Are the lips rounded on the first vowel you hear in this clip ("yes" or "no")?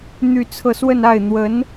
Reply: yes